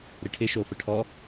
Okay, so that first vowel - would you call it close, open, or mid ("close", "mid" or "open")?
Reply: close